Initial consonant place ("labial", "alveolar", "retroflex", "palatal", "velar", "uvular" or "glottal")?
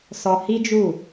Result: alveolar